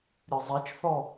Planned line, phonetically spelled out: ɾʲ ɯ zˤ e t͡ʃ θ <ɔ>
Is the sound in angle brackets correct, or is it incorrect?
correct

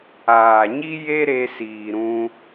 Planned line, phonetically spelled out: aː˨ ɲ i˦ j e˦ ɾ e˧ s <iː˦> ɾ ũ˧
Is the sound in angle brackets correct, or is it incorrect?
incorrect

